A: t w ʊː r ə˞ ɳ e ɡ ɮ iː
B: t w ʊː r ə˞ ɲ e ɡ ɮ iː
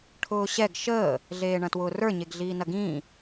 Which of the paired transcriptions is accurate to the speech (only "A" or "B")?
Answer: B